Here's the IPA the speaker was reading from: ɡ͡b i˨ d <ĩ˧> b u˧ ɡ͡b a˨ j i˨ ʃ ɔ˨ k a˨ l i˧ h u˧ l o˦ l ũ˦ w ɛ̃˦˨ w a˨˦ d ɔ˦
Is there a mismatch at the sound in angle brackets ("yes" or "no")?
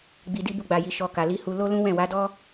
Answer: yes